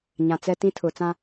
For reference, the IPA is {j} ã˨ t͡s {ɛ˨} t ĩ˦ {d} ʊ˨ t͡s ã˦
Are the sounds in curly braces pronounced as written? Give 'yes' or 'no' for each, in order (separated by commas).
no, no, no